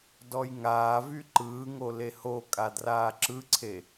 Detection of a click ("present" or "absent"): present